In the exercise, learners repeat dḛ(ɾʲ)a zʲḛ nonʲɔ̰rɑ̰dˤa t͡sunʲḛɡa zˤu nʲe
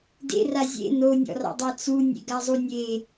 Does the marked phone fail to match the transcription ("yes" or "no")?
yes